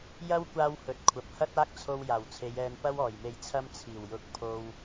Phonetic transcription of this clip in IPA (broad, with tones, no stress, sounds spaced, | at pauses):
j ɐ˥ w kʷ aː˥ w h ɵ˨˥ t̚ kʷʰ ɐ˨ p̚ h ɐ˥ t̚ aː˥ k̚ t͡sʰ o˧ w j aː˨˩ w t͡sʰ e˨˧ j ɛː˧ n p ɐ˥ w ɔː˨˩ j m e˧ j t͡sʰ ɐ˥ m t͡sʰ iː˨˩ w j ʊ˨˥ k̚ pʰ o˧ w